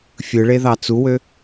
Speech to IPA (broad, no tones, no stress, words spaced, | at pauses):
fʲɯɭeðɑ t͡suwø